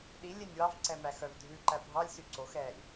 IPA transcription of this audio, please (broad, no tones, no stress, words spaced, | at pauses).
ɗi lʲenʲwɑvǀɛ mæxœvdʱʉǃæ bʱɑlʲsy ǀoxɛːlʲ